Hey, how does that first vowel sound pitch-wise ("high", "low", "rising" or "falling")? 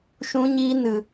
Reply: high